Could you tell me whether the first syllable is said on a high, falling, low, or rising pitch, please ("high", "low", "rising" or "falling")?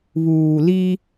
low